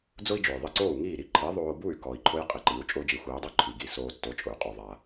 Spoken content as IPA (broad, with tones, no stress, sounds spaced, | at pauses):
d͡z ʊ˥ i̯ d͡ʒ o˩ j ðˤ i˧ ǀ oː˥˩ u̯ ŋ iː˥˩ ɾ i˥˩ ǃʰ i˩˥ ðˤ oː˧ b u˥˩ y̯ k ɔ˩ i̯ ǃʰ ʊ˥ j qʼ i˩ ǃ i˩˥ u̯ t͡ʃʼ ʊː˥ d͡ʒ i˩˥ xʷ iː˩˥ dˤ u˥ ǃʰ i˩ ɡ i˥˩ s oː˧ tː o˩˥ t͡ʃʼ ʊ˩ y̯ qʼ u˩ ðˤ a˩